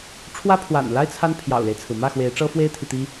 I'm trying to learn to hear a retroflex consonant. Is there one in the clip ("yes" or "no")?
yes